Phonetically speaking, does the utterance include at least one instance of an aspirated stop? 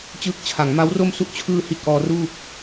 yes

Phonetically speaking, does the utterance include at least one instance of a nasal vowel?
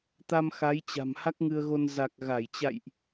no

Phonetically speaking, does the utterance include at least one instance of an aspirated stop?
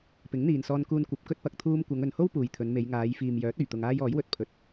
yes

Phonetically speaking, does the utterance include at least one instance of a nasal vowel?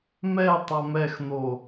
no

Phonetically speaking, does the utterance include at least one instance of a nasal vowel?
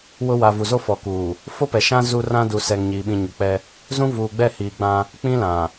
yes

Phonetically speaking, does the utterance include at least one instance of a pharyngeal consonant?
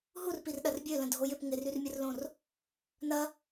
no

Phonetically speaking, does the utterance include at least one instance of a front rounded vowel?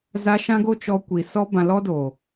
no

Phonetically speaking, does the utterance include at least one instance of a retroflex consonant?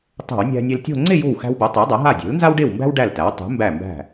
yes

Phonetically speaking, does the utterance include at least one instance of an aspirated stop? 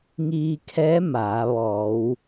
yes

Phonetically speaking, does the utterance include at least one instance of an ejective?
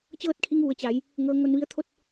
no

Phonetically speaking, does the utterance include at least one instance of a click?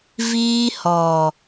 no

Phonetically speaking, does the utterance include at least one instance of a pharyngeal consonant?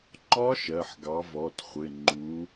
yes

